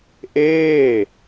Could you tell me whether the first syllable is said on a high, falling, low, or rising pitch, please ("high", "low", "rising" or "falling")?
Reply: falling